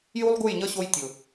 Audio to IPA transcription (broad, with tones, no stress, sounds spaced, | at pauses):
j u˦ lˠ ɡ u˦˨ j ɲ ʌ˦ ɕ o˧ j tʲ ʊ˨